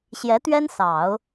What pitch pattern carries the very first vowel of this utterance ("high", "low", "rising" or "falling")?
rising